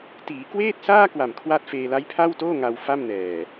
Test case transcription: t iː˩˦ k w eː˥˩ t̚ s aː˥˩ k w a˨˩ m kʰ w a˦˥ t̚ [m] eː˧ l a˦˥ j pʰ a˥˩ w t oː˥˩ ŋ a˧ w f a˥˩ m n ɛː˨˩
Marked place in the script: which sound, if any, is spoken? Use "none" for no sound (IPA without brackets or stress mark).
f